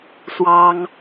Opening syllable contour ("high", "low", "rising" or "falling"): high